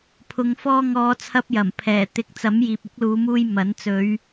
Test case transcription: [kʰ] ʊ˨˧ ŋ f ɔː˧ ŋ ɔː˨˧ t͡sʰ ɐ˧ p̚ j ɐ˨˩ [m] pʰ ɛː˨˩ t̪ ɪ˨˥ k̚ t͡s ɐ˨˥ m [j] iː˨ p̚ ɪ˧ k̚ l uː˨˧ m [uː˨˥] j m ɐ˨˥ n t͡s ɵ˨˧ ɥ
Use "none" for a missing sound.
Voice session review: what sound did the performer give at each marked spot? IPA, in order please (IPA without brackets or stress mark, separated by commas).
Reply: pʰ, m, j, uː˧